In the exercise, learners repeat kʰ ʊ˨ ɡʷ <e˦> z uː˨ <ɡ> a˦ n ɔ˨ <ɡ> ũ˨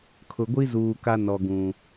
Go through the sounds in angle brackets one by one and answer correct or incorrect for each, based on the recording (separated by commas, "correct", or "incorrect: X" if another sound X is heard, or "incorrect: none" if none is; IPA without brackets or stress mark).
incorrect: i˦, incorrect: k, correct